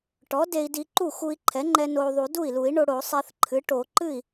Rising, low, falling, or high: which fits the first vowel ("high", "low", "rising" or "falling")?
rising